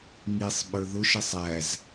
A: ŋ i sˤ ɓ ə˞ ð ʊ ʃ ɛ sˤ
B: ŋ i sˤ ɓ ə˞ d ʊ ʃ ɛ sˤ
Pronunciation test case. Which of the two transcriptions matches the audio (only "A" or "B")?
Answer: A